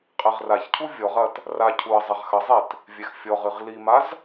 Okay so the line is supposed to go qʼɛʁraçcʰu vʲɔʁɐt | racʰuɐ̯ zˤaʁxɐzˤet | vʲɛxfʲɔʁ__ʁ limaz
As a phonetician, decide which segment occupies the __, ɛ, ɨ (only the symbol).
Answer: ɨ